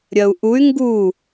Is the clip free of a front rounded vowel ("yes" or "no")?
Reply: no